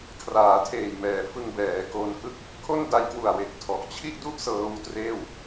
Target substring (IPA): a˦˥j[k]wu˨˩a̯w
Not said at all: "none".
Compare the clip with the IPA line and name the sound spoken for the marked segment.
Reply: k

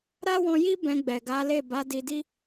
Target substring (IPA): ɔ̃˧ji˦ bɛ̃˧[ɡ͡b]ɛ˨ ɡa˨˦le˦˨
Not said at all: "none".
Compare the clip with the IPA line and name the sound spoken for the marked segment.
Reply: ɡ͡b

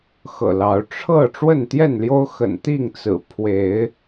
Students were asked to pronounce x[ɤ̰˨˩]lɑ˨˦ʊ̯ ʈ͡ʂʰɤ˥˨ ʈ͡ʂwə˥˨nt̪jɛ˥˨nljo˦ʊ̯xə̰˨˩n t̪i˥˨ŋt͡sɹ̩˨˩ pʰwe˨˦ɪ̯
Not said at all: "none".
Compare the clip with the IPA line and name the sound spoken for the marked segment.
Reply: ɤ̰˨˩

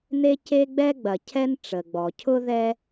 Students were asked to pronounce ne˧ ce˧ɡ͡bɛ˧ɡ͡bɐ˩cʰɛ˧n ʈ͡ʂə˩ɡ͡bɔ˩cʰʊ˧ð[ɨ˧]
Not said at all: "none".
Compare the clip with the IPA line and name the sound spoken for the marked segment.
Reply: ɛ˧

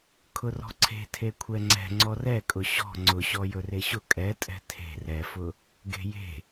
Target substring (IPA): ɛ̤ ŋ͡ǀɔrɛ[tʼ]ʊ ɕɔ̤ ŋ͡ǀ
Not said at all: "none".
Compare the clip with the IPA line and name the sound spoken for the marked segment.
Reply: kʼ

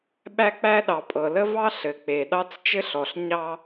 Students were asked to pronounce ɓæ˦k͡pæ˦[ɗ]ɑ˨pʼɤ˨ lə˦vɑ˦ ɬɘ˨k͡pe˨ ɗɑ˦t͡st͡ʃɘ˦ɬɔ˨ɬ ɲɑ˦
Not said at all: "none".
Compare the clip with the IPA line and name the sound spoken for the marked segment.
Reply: ɗ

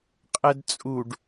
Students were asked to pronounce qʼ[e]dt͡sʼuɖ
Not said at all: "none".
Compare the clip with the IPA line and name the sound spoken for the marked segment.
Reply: ɛ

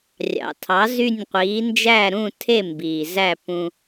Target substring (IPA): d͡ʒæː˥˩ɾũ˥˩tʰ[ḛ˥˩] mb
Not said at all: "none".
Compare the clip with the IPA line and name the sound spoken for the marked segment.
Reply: e˥˩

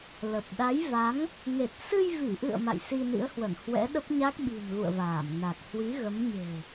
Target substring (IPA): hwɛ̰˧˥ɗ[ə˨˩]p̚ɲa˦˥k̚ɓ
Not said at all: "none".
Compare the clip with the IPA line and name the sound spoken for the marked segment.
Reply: ə˦˥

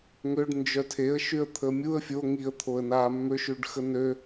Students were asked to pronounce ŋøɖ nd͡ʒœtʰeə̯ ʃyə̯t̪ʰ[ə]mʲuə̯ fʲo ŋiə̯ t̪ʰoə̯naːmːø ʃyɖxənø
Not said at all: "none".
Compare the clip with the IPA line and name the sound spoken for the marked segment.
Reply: ə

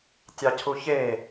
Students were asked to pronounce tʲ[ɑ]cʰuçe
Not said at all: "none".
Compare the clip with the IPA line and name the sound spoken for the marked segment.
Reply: ɑ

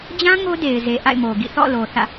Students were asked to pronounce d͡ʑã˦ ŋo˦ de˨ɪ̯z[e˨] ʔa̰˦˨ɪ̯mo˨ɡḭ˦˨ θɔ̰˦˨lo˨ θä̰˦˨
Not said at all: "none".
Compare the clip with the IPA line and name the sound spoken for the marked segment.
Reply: e˨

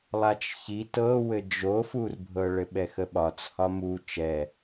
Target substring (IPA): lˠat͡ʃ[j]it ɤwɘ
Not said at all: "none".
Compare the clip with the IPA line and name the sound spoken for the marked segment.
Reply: ç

